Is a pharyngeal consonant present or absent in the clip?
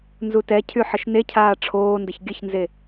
present